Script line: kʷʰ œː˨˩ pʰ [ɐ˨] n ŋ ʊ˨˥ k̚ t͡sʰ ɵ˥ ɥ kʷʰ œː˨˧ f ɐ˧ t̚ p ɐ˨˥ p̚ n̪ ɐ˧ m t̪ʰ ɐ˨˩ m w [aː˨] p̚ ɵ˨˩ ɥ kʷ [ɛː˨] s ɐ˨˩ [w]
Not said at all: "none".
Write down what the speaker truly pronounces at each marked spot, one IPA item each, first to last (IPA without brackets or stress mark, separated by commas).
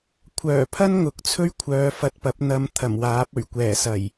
ɐ˥, aː˨˥, ɛː˨˩, j